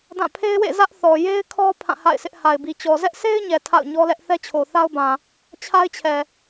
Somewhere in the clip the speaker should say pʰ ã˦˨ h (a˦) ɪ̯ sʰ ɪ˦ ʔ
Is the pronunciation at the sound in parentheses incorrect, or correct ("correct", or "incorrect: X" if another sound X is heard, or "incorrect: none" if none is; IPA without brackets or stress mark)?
incorrect: a̰˦˨